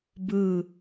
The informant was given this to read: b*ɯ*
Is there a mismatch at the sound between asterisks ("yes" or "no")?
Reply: no